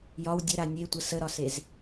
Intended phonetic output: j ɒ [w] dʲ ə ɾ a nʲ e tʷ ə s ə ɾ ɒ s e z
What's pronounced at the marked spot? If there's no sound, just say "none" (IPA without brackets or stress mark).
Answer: w